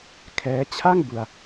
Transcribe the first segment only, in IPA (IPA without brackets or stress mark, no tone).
kʰ